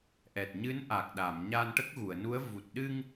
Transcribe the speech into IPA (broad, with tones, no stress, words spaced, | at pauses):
ʔɛ˨˩t̚ɲɨ˧˥n ʔa˨˩k̚ɗa˨˩˨m ɲa˧nʈə˦˥k̚ɣu˨˩˨ə̯nu˧˥ə̯ vu˨˩t̚ɗɨ˧ŋ